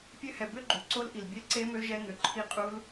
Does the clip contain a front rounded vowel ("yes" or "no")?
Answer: yes